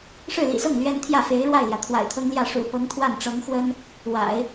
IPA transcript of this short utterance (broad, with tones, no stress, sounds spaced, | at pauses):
ʂ ɻ̩˥˩ l ḭ˨˩ s ɤ˥˩ ŋ l ɥ ɛ˥ n t̪ʰ j ä˥˩ f e˧˥ ɪ̯ ɻ w a˥˩ ɪ̯ l j ä˩ t̪ʰ w a̰˨˩ ɪ̯ t̪ʰ ɤ˥ ŋ l j ä˥˩ ʂ ṵ˨˩ p ɤ˧˥ ŋ t̪ʰ w a˥˩ n ʈ͡ʂ ɤ˧˥ ŋ x w ə˥ n | w a̰˨˩˦ ɪ̯